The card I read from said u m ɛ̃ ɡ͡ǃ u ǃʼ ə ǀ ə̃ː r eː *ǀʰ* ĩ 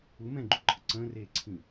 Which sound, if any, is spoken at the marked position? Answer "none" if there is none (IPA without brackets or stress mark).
ǀʰ